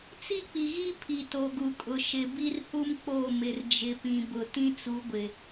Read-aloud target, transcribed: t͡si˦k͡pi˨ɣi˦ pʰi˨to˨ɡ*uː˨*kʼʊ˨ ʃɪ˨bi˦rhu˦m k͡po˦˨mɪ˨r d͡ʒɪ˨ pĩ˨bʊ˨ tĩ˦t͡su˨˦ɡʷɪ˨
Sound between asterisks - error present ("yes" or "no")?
yes